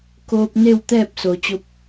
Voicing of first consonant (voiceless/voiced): voiceless